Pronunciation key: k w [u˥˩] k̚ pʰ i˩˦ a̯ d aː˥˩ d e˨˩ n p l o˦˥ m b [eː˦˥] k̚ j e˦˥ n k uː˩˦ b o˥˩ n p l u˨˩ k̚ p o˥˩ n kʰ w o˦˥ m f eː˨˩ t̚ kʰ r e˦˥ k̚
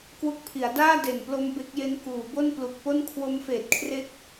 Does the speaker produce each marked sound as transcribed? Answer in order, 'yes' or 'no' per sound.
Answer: no, no

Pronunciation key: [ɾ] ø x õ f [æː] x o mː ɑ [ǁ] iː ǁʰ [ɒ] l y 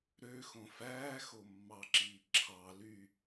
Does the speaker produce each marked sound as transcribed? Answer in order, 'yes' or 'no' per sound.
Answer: yes, yes, yes, no

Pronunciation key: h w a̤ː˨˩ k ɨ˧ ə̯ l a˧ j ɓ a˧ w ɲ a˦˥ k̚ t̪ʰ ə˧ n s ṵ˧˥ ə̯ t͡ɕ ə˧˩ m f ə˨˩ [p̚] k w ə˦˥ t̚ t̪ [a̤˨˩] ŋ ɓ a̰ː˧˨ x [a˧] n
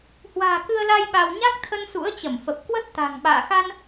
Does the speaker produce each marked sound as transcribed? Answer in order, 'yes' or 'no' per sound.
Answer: yes, yes, yes

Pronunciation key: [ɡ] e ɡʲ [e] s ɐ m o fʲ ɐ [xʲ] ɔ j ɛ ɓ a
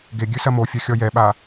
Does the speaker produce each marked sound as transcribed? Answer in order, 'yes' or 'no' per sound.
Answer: yes, no, yes

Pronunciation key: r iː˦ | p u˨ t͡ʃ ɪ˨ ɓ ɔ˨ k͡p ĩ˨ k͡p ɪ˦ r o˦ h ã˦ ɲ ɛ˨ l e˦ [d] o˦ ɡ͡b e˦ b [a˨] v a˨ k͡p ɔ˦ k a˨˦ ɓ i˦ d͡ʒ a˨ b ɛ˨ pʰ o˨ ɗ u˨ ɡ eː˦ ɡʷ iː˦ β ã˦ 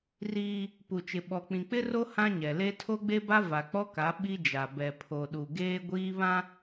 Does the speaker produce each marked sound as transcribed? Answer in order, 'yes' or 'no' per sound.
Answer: no, no

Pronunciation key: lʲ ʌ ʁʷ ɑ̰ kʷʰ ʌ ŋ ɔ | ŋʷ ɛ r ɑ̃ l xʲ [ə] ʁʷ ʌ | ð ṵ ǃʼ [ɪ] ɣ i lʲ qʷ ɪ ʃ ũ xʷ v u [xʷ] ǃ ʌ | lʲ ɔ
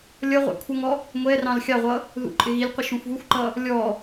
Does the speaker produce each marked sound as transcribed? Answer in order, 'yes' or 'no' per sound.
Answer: no, yes, yes

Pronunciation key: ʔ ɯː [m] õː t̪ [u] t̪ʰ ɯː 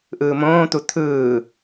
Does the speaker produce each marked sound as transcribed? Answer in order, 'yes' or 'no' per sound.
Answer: yes, yes

